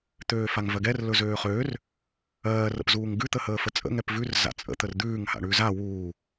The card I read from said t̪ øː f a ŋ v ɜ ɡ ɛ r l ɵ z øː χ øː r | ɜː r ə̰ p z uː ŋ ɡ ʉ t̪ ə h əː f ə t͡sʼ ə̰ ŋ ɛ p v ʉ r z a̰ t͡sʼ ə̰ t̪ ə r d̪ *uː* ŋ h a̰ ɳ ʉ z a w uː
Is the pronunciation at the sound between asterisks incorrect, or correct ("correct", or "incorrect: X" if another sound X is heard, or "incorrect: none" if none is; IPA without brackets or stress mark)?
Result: incorrect: ʉː